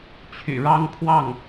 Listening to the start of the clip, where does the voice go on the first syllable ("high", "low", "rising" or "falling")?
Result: low